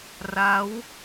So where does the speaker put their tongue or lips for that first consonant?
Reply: tongue tip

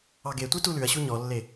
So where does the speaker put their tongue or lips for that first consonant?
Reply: velum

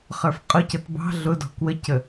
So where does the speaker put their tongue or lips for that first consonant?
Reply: uvula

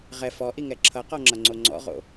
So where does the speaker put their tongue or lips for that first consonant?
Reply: uvula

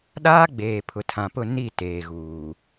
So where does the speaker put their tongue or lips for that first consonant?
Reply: tongue tip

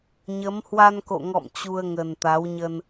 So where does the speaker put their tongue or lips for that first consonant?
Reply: palate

